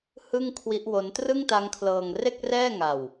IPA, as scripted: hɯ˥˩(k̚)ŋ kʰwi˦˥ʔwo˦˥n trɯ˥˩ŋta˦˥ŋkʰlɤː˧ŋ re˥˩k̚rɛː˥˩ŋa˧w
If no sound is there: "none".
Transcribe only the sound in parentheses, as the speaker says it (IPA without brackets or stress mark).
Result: none